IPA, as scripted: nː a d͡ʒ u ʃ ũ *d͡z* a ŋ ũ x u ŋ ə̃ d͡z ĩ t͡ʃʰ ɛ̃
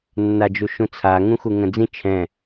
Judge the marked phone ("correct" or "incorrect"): incorrect